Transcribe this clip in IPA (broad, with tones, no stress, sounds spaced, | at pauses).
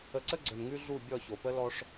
ə˨ ǀ ə˦ ɡ͡ǀ ə˨ n ŋ ʉ˦ ɮ u˦˨ bʲ ɔ˦˨ ç o˨ p ə˦ l ɔ˦ ʂ